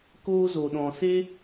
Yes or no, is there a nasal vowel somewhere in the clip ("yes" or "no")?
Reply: yes